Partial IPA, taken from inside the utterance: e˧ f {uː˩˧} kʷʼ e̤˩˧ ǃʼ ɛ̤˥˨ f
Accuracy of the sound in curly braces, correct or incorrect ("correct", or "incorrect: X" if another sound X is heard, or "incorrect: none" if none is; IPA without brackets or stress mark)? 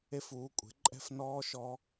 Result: correct